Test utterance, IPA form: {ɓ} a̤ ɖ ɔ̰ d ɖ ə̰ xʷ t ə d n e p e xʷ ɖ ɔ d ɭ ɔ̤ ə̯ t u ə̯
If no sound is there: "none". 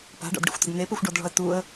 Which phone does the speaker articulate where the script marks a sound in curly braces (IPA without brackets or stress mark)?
p